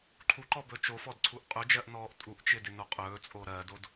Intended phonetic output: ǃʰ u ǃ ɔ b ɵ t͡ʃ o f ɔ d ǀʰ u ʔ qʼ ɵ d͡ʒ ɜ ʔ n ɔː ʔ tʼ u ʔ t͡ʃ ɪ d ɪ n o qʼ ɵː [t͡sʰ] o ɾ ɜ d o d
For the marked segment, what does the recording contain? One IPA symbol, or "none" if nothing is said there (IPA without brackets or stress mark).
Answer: t͡sʼ